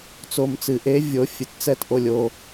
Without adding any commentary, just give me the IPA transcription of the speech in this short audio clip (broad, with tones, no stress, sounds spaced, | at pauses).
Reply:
t͡s o˨ m t͡s ɨ˨˩˦ ʔ e˨˥ vʲ o˨˥ fʲ ɨ˨ t t͡s ɛ˦˨ t ʔ o˦˨ lʲ o˦˨